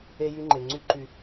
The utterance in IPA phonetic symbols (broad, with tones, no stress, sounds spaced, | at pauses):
e˧ j y˧ ŋ͡ǃ e˨ ŋ͡ǀ y˦ ǃ y˧